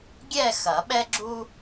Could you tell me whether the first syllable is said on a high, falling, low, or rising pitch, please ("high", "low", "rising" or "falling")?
falling